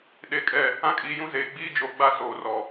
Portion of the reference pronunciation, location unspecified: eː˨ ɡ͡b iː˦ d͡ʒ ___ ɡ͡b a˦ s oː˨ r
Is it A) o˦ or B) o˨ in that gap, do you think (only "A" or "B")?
B